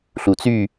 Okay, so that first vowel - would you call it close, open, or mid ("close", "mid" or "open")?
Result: close